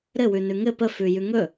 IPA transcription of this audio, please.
ɾɘ wʉnʉŋɘ pəfʉ jʉŋɵ

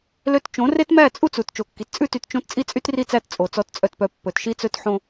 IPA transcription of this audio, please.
lø˦t t͡ʃõ˨˦re˦tmæ˦˨ t͡sʼu˦t͡su˨t t͡ʃo˨kːi˨t t͡sʼʉ˦ty˨˦t t͡ʃõ˦t t͡sʼi˦t͡sʼy˦tri˦˨t͡sæ˦˨t t͡sʼo˨ t͡sɔ˨˦tt͡sʼœ˨tpœ˨ pːɵ˨tʃi˦t͡sɵ˦tħõ˦

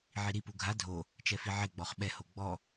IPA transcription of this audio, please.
ʕiɾipu ɡʱa dʱo | t͡ʃɛfiʕɪɡ͡bɔχ ɓɛho ɡ͡bɔ

